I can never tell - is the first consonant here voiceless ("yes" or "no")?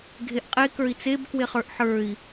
no